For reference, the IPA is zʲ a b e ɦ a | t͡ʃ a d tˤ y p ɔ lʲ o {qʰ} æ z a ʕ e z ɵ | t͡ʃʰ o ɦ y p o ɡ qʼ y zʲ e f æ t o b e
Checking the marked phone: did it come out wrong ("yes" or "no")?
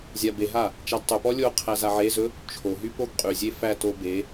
no